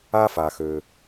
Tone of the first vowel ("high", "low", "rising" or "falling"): high